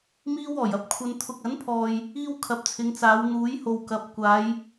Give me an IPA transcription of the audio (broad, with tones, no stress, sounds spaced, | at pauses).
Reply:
m iː˥ w ɔː˨˩ j ɐ˧ p̚ kʷʰ ɐ˧ n t̪ʰ ʊ˨ k̚ ɐ˨˥ n pʰ ɔː˨ j | iː˥ w kʰ ɐ˨˥ p̚ t͡sʰ ɪ˨˧ ŋ t͡s aː˨˧ w n̪ uː˨˥ j h o˨ w k ɐ˨˥ p̚ kʷ aː˨˧ j